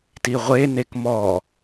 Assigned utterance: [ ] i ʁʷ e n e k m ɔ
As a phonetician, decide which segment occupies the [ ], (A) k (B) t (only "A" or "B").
B